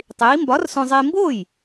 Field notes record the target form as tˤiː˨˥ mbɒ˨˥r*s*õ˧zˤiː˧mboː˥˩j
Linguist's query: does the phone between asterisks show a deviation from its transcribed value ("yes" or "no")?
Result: no